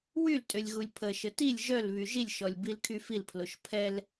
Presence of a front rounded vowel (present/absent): present